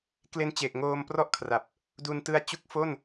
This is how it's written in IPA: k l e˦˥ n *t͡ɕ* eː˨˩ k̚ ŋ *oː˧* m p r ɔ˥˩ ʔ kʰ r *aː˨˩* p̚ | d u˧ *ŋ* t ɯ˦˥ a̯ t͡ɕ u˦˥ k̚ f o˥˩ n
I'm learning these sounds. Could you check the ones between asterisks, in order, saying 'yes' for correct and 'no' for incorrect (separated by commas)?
yes, yes, no, no